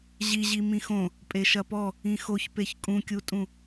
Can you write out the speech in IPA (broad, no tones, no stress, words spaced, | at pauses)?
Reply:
ʑiʑi mĩxõ | pʼeʃɐpɔ | ĩxoç peçkʼũkʲutʼũ